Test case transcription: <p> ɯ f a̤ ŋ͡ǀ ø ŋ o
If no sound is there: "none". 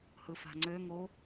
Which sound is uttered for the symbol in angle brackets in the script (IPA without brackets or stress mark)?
h